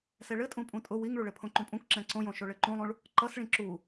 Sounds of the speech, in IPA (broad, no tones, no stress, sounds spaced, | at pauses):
s ɛ ɭ ɘ tʼ ũ pʼ ũ tʼ ʊ w i ŋ ɭ u ɭ ɘ pʰ õ ǃ ũ pʼ ũ k ǁ ɛ̃ ǀ õ j õ ʃ o ɭ ɘ ǃ ũ lˠ ũ ɭ | ǃ ʌ s ɭ ĩ ǁ u